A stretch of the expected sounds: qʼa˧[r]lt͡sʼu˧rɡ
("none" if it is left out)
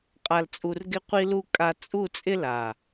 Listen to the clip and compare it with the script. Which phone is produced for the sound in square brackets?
none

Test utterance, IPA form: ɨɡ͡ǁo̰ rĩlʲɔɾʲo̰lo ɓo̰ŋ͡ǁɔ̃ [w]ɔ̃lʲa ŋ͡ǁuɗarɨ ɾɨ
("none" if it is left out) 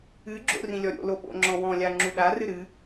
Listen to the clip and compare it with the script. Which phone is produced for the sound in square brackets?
w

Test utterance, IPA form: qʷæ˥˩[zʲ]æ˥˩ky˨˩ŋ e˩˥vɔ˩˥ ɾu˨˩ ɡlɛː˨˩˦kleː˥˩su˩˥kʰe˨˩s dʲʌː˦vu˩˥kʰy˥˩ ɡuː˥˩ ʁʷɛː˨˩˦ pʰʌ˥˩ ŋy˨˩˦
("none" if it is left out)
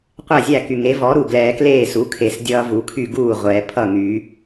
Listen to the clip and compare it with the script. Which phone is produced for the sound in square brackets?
zʲ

